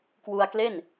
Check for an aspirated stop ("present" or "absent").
absent